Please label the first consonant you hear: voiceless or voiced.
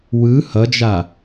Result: voiced